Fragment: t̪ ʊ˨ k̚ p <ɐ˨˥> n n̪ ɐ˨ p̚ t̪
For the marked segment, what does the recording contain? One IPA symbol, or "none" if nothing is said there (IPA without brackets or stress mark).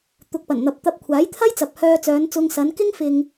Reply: ɐ˨˩